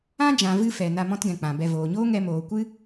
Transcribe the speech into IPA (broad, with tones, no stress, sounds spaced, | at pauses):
ã˦ d͡ʒ ã˨ v ɨ˦ f ɛ˨ n a˧ m ɔ̃˦ t ɡ ɛ̃˨ k͡p ã˨ b ɛ˧ v oː˨ ɲ oː˦ ŋ ɛ˧ m oː˨ kʷ ɨ˦